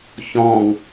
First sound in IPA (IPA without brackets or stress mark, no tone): ç